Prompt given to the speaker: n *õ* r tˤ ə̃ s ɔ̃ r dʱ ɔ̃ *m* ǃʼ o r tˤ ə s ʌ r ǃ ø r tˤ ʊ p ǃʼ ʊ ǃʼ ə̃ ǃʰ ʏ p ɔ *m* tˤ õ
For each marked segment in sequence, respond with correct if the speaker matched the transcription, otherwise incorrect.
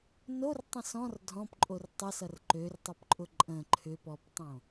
incorrect: o, incorrect: p, incorrect: p

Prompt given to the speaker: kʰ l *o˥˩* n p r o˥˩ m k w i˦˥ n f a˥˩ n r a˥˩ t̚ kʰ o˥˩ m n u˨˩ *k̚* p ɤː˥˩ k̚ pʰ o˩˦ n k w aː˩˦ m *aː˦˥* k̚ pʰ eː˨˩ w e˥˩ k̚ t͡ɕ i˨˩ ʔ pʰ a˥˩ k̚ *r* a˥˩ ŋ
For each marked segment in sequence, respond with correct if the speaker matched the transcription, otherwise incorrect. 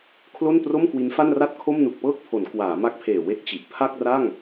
correct, correct, incorrect: a˦˥, correct

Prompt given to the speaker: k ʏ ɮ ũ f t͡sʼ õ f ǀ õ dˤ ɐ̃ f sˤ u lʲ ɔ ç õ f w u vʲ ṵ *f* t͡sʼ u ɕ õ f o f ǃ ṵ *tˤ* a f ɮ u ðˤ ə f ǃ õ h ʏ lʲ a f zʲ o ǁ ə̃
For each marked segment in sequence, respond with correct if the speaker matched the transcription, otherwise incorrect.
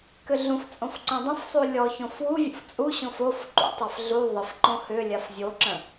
correct, correct

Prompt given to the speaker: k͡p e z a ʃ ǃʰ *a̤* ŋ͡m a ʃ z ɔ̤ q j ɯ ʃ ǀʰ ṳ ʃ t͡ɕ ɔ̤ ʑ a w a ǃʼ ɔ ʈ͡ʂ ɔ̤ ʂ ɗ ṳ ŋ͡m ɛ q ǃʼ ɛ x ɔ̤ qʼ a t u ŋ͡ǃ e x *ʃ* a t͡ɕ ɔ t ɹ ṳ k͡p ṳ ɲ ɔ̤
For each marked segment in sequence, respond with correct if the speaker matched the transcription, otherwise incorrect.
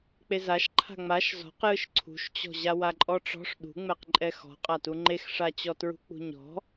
correct, incorrect: ʂ

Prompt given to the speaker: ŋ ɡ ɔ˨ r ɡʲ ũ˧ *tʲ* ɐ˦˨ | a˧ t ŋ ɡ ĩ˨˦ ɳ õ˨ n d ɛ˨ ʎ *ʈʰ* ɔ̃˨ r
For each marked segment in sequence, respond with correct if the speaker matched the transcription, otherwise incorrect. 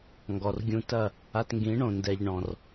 incorrect: t, incorrect: ɳ

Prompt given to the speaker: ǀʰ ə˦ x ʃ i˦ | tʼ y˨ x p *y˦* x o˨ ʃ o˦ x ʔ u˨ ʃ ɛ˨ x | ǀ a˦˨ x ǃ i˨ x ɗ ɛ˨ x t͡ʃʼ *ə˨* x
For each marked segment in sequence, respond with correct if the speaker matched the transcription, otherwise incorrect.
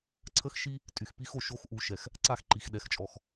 incorrect: i˦, incorrect: ɔ˨

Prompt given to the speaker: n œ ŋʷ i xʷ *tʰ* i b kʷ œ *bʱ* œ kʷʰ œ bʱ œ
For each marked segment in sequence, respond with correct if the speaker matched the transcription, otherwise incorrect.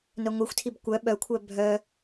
correct, incorrect: ɓ

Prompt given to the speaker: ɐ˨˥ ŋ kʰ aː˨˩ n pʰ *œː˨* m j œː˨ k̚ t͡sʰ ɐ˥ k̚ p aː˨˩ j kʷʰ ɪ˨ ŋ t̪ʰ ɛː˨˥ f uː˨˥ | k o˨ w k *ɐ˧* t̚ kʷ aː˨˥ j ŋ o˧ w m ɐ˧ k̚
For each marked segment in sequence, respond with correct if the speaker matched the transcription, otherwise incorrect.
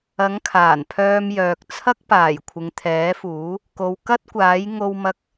incorrect: œː˧, incorrect: ɐ˥

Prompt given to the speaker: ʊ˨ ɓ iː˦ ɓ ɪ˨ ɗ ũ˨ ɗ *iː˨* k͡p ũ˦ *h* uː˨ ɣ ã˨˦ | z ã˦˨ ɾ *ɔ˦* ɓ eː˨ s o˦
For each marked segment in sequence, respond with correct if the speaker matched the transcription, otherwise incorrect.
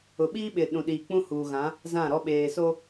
correct, correct, correct

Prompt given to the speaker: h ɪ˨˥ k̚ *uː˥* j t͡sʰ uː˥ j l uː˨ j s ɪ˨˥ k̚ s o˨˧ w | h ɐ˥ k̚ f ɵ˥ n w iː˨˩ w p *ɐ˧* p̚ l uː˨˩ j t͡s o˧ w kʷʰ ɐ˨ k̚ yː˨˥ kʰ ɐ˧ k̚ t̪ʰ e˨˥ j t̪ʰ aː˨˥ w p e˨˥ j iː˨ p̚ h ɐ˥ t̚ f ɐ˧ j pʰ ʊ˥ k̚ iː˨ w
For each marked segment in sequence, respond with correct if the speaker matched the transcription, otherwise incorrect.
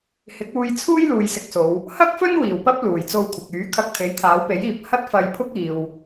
incorrect: uː˧, incorrect: ɐ˥

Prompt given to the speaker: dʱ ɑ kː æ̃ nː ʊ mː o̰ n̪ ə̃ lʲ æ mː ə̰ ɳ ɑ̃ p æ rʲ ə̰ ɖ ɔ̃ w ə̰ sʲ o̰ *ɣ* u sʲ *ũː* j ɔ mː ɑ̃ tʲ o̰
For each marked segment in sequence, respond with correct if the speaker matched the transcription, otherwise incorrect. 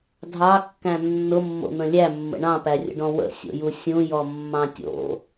incorrect: j, incorrect: ũ

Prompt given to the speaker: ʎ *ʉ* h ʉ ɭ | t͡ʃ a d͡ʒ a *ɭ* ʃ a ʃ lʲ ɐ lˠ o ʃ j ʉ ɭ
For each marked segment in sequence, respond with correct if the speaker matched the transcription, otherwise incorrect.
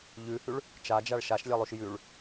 correct, correct

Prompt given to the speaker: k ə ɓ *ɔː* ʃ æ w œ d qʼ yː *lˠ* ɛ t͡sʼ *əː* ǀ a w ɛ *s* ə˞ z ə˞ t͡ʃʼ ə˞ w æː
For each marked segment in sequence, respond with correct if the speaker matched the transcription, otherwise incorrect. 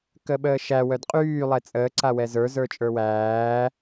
incorrect: əː, correct, correct, incorrect: z

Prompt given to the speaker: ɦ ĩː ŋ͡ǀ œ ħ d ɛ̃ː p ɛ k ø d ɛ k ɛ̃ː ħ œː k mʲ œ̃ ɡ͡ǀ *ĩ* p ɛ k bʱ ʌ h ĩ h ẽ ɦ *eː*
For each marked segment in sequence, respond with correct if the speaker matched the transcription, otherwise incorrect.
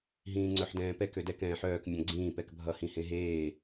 incorrect: ĩː, correct

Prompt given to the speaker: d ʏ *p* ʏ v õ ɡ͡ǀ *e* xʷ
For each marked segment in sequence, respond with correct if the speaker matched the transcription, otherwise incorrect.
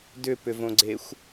correct, correct

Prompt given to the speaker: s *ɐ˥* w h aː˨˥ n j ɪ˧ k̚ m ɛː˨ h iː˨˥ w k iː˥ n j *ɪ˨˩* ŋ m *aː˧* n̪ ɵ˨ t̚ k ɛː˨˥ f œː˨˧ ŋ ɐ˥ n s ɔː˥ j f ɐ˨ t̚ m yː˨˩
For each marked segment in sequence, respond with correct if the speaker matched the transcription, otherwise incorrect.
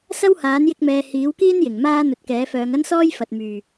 correct, correct, incorrect: aː˥

